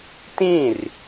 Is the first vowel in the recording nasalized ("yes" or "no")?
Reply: yes